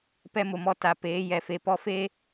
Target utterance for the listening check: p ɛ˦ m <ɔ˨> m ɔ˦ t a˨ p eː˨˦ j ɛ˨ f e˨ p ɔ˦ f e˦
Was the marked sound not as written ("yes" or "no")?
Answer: yes